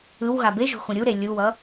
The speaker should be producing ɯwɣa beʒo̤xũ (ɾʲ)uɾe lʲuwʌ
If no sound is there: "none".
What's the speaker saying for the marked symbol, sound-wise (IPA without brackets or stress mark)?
ɾʲ